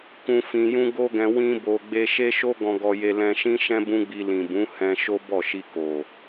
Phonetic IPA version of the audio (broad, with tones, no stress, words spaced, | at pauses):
kũ˧ fĩ˧jũ˦ ɡo˦ɡɛ̃˧ wĩ˦bo˧ ɡ͡be˧ ʃe˦ʃo˦ ɡɔ̃˧ɡɔ˧je˧ lɛ̃˧ʃĩ˦ʃɛ̃˦ bũ˦ɡ͡bi˧ lĩ˨bũ˨˦ hɛ̃˧ ʃo˦bɔ˦˨ʃi˧ ko˨